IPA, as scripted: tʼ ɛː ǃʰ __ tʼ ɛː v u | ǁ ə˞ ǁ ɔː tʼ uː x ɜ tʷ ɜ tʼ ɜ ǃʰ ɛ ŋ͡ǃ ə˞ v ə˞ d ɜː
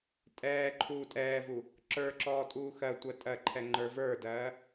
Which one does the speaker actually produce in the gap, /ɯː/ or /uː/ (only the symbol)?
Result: uː